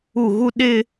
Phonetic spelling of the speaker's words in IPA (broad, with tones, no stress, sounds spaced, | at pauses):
u˦˨ ɣ u˦ ɗ ɪ˦